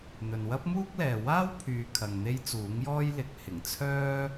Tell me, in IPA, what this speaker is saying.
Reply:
n̪ ɵ˨ n w ɐ˥ p̚ m uː˥ k̚ l ɛː˨ w aː˥ w pʰ yː˨ kʰ ɐ˨ ŋ n̪ e˥ j t͡s uː˨˥ ŋ j ɔː˥ j l ɪ˨ k̚ h ɪ˨˩ ŋ t͡sʰ œː˥

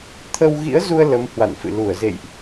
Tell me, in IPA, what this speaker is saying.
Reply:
t̪ʰ ə˧ w ɣ ḭ˧˥ ə̯ z u˧ ə̯ l ə˨˦ m h w a̰˧˨ n f ɨ̰˧˨ l u˧˩ ə̯ z ḛ˧˨ j ʔ

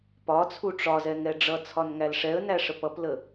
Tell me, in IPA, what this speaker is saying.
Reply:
p ɒ t͡sʰ u ʈ͡ʂ ɒ z ɛ ŋ ɛ ɖ͡ʐ ʌ t͡sʰ ɒ n ŋ æ l ʂ ɛ ə̯ n æ ʂ ə p ʌ p l ə

